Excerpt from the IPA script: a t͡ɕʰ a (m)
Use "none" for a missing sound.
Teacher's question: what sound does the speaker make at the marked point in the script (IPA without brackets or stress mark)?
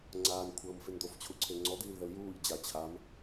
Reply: m